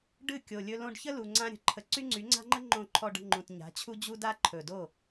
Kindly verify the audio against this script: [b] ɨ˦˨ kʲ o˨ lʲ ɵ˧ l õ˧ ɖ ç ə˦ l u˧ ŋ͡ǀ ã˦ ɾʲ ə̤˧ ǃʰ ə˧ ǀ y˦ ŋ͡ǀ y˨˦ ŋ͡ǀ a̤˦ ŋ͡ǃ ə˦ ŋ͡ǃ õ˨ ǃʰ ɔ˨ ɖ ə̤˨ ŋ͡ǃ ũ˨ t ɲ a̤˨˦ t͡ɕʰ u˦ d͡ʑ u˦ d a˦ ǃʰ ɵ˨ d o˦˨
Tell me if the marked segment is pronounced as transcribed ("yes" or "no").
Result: no